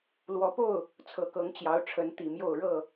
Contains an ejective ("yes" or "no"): no